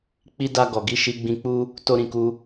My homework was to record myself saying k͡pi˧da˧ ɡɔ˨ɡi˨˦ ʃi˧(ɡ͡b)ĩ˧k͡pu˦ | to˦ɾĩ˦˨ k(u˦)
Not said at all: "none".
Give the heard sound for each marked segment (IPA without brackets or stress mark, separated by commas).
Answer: ɡ͡b, u˧